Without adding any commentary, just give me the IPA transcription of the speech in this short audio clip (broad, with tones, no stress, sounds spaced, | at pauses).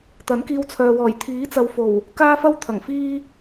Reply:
t̪ ɐ˨˥ n k iː˧ w t͡sʰ œː˨ w ɔː˨˩ j t̪ʰ iː˨˥ t͡s ɐ˨ w f o˨˩ w | k aː˥ f ɐ˥ w t̪ʰ ɐ˨˩ ŋ f iː˥